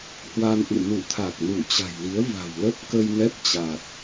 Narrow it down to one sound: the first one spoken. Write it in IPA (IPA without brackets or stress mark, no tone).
h